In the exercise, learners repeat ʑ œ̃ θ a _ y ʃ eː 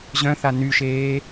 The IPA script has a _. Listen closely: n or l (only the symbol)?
n